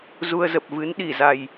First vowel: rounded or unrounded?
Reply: rounded